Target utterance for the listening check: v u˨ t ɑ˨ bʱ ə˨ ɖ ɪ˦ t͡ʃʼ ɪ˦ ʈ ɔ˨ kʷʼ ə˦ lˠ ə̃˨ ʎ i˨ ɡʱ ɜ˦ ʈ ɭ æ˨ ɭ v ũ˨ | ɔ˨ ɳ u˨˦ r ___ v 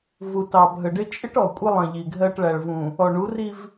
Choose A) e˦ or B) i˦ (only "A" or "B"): B